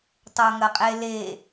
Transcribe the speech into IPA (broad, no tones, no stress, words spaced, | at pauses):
tˤoŋɐqʼele